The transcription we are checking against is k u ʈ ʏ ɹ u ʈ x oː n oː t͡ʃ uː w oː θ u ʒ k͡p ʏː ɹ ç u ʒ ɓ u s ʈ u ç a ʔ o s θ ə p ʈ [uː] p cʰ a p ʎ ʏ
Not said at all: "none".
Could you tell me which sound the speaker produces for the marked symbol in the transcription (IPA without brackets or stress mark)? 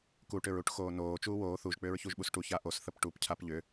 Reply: u